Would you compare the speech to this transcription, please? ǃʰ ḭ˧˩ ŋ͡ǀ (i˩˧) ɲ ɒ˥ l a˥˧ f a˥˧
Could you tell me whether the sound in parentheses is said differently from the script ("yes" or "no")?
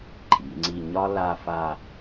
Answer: yes